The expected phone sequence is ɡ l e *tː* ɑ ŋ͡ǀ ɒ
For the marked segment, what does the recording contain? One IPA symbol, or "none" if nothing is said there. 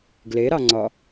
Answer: ɾ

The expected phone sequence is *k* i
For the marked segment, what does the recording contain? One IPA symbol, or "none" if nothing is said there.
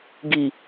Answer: ɡ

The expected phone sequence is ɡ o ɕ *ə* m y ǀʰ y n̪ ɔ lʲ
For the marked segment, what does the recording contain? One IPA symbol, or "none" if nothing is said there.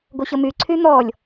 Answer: ə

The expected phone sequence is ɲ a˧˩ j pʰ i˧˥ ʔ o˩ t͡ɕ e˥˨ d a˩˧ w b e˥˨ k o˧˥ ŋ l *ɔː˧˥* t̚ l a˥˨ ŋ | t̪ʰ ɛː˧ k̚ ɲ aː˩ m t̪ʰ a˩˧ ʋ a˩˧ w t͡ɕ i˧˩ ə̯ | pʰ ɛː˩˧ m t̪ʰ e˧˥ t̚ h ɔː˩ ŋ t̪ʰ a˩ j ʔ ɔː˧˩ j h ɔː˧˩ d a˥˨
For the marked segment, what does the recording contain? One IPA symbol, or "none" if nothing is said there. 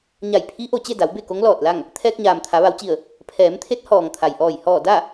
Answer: ɔː˧˩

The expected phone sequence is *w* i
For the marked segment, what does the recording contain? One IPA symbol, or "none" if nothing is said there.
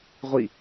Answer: ʁʷ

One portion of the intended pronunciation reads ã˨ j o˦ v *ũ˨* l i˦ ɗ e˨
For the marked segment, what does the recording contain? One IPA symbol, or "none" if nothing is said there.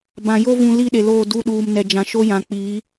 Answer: ũ˨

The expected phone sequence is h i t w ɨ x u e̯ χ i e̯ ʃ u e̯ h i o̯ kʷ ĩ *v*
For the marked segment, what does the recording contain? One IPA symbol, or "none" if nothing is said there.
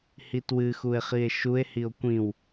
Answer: w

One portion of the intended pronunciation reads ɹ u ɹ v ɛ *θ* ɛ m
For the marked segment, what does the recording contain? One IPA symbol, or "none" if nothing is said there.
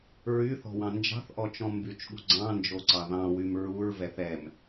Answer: θ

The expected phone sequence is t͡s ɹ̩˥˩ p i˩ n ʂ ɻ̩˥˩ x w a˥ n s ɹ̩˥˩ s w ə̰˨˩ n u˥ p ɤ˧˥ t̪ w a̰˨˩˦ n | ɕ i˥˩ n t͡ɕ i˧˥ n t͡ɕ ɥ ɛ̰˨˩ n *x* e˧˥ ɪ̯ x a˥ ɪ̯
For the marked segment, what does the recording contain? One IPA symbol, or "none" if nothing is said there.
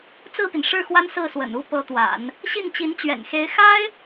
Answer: x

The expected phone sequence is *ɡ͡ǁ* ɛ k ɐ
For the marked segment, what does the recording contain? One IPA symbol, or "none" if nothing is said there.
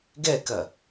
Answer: ɡ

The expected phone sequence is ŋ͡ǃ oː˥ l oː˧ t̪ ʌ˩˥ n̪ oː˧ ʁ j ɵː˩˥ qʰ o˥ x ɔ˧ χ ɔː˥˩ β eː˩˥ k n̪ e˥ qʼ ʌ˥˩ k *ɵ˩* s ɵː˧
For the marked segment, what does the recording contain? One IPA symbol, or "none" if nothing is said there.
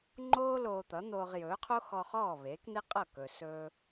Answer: ɵ˩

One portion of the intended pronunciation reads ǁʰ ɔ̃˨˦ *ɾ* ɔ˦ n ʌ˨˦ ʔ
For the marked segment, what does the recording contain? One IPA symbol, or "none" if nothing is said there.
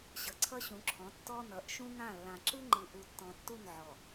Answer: tː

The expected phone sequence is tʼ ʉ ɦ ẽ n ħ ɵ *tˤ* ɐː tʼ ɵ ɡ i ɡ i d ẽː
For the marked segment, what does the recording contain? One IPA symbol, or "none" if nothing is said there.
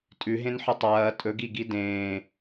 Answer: tˤ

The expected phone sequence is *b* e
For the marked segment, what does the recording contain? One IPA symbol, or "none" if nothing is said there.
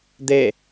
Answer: d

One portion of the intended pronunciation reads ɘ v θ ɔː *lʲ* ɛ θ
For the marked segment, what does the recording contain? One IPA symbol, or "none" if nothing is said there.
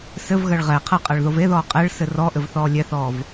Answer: lʲ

